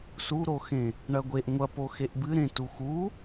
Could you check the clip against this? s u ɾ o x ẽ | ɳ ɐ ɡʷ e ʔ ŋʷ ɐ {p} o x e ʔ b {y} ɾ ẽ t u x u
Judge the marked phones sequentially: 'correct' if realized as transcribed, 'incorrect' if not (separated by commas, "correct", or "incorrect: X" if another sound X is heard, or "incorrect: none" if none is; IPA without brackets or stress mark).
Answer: correct, incorrect: ɨ